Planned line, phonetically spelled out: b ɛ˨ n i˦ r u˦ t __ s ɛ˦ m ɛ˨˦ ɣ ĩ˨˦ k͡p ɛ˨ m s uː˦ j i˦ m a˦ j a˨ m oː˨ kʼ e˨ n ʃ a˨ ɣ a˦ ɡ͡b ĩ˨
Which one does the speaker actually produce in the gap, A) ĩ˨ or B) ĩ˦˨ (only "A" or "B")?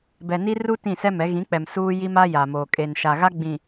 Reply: B